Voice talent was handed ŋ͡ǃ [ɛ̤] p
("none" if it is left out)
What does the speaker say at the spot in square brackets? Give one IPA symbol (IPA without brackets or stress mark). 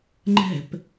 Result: ɛ̤